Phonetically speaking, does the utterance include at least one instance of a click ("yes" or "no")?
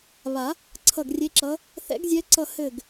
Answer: yes